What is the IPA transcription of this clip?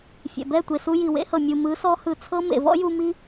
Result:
fʲɛ̰˨bɛ˦˨ tʷe˨su˧ ji˨ wḛ˦hɤ˨ mʲu˨ mɯ˨˦ sɔ˦ hɯ˧t͡sʰɤ˦ mḛ˨vɔ̰˦ju˧mi˦

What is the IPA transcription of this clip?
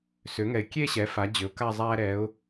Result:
sʏː˩˥ŋɛ˨ɪ̯ kʲe˥˧ɕɛ˩˥ fa˩˥d͡ʑʏ˩˥ʊ̯ka˥˧zˤæː˥ ɾɛ˧˥ʊ̯

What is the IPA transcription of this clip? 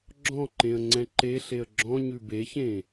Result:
ɡ͡ǁɔ̃ ǃẽə̯ŋ͡ǀɛ̃ǃeɬeə̯ ɡ͡ǁɔ̃ ɲʉbeçẽ

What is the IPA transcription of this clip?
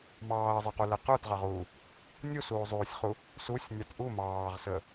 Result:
mɑːɐ̯zˤɛqulɛ qə˞tʁɑʁuː | nʲusuːzˤuːsʲχu | susʲnʲɑt ʔu mɑːʁsəː

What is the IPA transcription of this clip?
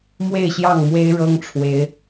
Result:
mwe˥˨ɪ̯ɕjɑ˥˨ŋmwe˦ɪ̯ ɻɤ˦ŋʈ͡ʂʰwe˨˦ɪ̯

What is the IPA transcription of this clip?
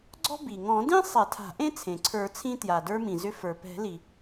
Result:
ɡ͡ǀɔ̤˥bi˩ ŋɔ̃˨˩˦dĩ˥ sˤɛ˨˩˦tʰa̤˨˩˦ʔẽ˥ t͡sʰẽ˩ǀʰə˞˨˩˦t͡sʰĩ˧ tja˩də˞˧mĩ˩ zʏ˧ fə˞˩pɛ̤˨˩˦li˩

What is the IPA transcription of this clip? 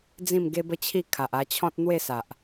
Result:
d͡zĩ˥˧mɡe˦bə˦t͡ɕʰi˥˧ kʰa˨ʔa˧t͡ɕʰɔ̃˦t̚ n̪we˥˧sa˨ʔ

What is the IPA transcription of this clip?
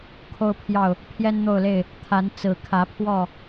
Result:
kʰo˦ʊ̯pʰjɑ˥˨ʊ̯ | pʰjɛ˦nn̪o˥˨ʊ̯le˥˨ɪ̯ | t̪ʰa˨˦n t͡sɹ̩˨˩kʰä˨˦pʰwɔ˥˨

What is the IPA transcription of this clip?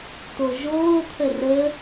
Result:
toʒoːtʰə rə

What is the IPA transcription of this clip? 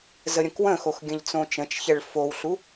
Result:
zəɾʲə̃kwə̃xox ɡʲə̃ʎt͡sõt͡ʃə̃t͡ʃçɛɭ fowɬu

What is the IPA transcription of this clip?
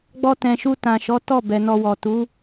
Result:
ɡ͡bɔ˧tɛ̃˨ʃu˧ tã˨ʃɔ˨˦ tɔ˦˨ bɛ˨nɔ˧wɔ˨ tu˨˦

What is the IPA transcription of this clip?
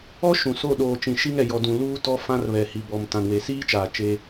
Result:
ɔ˦ ʃũ˨so˦˨ ɗoː˨t͡ʃĩ˨ʃi˦ŋɛ˨ jɔ˨dũ˨luː˦ tɔ˦fã˦r βɛ˨hi˨ bɔ˨m tã˨nwe˨siː˦t͡ʃaː˨ t͡ʃe˦

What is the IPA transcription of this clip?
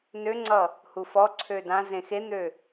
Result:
nøŋ͡ǀʌ | hufɔǀʰø dã zẽxen̪ø

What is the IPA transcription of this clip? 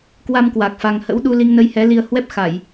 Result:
kwa˧mkwa˨˩k̚ fa˧ŋ hə̰˧˥wɗu˧ li˧ŋnə˧jhɛ˨˦ li˧ə̯hwɛ˦˥p̚xa˧˩˨j

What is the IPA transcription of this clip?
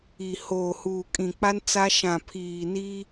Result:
i˨ hoː˨huː˨kʼĩ˨k͡pa˦n t͡sa˦ʃã˨ pʰiː˨ni˦

